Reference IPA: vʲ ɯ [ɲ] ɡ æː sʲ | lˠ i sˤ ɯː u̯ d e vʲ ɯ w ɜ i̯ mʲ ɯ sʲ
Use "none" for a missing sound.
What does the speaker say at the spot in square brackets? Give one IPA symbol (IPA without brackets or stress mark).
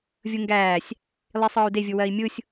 ŋ